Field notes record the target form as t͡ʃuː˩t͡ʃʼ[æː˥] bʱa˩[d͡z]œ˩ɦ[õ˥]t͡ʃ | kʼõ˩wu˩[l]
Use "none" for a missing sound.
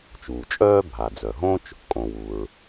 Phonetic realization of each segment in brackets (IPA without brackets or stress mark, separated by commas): œː˥, d͡z, õ˥, ɹ